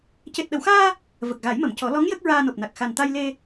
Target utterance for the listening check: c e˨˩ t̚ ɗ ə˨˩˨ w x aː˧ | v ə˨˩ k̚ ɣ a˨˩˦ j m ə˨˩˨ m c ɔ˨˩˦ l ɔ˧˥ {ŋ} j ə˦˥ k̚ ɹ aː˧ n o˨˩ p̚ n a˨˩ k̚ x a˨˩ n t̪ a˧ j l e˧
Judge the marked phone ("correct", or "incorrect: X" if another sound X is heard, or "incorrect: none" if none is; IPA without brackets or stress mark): correct